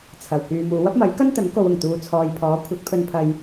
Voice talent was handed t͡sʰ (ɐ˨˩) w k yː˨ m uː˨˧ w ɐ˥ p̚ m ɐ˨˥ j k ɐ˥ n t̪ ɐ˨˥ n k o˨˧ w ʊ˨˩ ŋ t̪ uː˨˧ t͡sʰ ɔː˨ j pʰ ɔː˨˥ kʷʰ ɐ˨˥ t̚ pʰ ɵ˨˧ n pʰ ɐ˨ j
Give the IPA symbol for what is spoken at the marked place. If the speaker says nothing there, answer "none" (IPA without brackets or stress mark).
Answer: ɐ˨˩